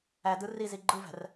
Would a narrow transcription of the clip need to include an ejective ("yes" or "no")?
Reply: no